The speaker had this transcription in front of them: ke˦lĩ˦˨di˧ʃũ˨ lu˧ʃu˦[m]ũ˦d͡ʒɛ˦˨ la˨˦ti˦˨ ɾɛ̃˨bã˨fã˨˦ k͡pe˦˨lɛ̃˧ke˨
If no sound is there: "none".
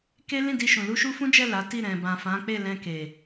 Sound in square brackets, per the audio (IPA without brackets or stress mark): f